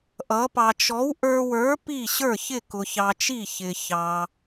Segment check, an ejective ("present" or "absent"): absent